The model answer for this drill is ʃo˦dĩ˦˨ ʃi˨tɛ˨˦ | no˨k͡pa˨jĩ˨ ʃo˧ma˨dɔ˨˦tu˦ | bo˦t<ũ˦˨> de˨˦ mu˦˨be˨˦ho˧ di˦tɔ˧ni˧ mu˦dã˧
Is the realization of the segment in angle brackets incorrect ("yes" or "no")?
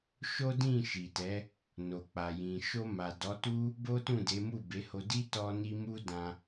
no